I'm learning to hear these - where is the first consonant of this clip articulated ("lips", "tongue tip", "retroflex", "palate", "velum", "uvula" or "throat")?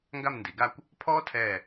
velum